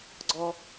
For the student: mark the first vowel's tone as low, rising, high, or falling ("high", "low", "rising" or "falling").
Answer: high